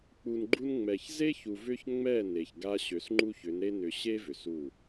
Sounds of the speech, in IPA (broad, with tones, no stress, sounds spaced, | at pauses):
k͡p u˨ n ɡ͡ǃ u˦ n ŋ͡m ɛ˨ ç z e˦ ç u˨ v ʏ˦ ç ŋ͡m ɛ˦˨ n e˨ ç ɡ a˦ ɕ ø˨˦ s ŋ͡ǃ u˦ ç ʏ˨˦ n ɾ e˦ n ʏ˨ ɕ e˦ v ʏ˨ s u˦˨